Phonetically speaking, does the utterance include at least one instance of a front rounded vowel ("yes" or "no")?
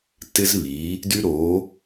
yes